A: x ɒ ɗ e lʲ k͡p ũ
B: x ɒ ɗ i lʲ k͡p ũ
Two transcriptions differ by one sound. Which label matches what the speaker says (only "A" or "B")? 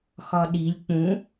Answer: B